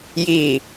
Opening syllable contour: low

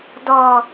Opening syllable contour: low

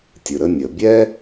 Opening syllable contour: low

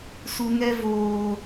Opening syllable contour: low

